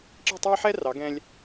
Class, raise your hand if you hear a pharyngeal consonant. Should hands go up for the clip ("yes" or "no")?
yes